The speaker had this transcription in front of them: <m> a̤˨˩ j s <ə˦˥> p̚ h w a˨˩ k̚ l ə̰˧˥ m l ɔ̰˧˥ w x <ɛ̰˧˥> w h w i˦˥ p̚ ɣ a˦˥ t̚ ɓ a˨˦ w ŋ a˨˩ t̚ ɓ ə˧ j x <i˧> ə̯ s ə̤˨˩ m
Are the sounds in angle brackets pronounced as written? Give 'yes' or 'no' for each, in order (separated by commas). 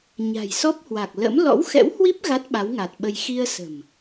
no, no, yes, yes